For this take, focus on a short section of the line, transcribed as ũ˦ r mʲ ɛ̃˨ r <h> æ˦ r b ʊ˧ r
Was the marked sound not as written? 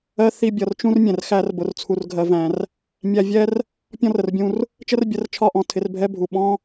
yes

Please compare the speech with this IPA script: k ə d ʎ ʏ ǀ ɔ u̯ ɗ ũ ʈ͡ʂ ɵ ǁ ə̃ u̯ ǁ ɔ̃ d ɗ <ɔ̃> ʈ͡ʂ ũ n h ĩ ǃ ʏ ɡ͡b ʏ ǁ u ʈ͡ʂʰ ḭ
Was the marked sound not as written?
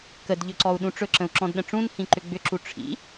yes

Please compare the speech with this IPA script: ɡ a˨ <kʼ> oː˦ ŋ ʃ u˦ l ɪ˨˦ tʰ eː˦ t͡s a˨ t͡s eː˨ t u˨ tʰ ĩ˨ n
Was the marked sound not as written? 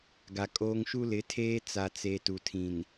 no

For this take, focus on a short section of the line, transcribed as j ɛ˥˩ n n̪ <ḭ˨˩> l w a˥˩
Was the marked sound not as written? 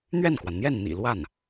no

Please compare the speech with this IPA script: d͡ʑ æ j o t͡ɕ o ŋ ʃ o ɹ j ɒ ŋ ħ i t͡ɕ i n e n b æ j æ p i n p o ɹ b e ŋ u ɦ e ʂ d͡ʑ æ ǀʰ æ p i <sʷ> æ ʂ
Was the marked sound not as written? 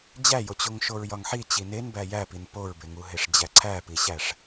yes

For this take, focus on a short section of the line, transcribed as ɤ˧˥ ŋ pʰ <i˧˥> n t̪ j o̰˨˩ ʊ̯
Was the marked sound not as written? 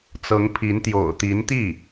no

